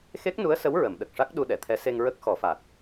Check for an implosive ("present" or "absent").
present